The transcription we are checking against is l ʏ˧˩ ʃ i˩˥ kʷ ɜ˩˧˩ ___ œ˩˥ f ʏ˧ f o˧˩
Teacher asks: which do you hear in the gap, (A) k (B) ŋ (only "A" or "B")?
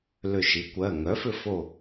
B